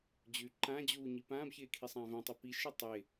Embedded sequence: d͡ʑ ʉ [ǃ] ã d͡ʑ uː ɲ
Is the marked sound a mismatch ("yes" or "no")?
no